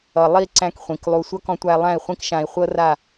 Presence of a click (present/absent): present